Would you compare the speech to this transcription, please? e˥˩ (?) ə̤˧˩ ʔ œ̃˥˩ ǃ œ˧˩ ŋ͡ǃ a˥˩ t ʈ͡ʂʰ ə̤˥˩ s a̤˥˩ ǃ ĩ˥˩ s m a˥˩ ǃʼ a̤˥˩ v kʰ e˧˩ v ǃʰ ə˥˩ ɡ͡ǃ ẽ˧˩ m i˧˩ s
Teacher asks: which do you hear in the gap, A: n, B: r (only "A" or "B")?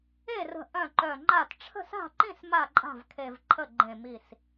B